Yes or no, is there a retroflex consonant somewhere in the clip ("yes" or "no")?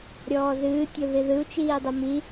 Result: no